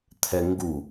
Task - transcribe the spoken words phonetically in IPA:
t̪ʰɛŋɡu

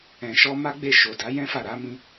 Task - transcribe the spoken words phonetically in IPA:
ɛ̃˨ʃɔ˧ ma˦ɡ͡be˦˨ ʃo˨ da˨˦jɛ̃˦fa˦˨ ɾa˨˦mĩ˧

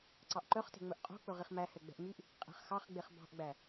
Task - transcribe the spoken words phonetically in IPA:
ǀɑʔǃœχte̤ŋ͡mɵʔ qʼo̤k͡pɵ ʁiχmæ hɛɡ͡bɛ̤ʔmyʔ | qʼɛ̤χxɑχɡ͡beχ bɑ̤ʔɡ͡bæ

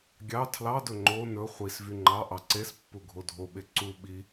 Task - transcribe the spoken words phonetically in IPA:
ɡʲɑ tʰlɑdɵ ŋ͡ǃo nɵ χʷis vyŋ͡ǃɑʔɑ ǀespːu ɡʱodʱoɓe ǀu ɓi

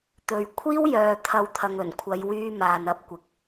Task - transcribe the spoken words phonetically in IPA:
t̪ɵ˨ɥ kʷʰiː˥wjœː˨ t̪ʰɐ˨˧w t̪ʰɐ˨ŋɵ˨˩nkʷʰɐ˨˧jwyː˧ maː˨nɐ˧p̚kʷɪ˨k̚

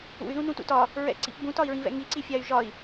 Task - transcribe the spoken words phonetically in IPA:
ṵy̯ ðũnũtṵtɒ | ɹɛ̰ǀḭpbũ tɒi̯ɹĩvɛ̰ŋi ǀifʲay̯ʒɒi̯

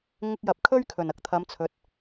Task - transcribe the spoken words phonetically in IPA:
ŋɪ˧k̚jɐ˨p̚kʰɵ˥ɥkʰɵ˨˩n ɐ˥k̚t̪ʰɐ˨˧mt͡sʰɵ˨˥t̚

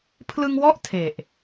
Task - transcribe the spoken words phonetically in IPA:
pʰlɯ˧ŋwɔ˥˩ʔ tʰe˨˩ʔ

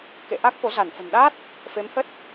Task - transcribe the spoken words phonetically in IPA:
kḛ˧˨ ʔa˦˥k̚fo˨˦za˧˩nfə̤˨˩n ɗa˦˥t̚ | fe˨˦mhə˦˥t̚

